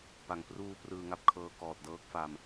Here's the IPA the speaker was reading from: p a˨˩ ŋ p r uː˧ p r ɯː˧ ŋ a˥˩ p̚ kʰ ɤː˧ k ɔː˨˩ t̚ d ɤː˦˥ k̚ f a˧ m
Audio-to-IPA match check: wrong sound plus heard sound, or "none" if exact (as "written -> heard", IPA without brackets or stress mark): none